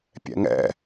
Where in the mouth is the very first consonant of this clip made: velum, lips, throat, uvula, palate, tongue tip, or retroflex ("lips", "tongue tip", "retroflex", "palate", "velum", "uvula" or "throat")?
lips